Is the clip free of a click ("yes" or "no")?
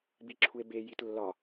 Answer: no